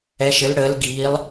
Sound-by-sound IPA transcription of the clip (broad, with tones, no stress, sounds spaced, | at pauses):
ɛ˩˧ ʃ ɘ˩˥ l ɽ əː˩˧ l ɡ iː˩˧ lˠ